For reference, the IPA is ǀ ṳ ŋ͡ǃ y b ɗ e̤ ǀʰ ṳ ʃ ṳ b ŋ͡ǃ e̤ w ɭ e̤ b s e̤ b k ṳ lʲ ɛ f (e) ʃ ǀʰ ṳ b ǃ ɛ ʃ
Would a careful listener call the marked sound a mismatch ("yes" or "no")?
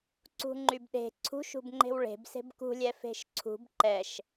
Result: yes